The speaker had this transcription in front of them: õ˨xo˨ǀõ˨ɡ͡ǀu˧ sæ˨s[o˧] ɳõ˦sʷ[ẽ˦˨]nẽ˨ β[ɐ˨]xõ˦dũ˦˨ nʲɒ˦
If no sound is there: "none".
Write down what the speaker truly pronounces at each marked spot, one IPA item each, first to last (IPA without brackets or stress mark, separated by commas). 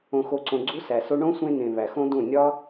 o˧, ẽ˧, æ˨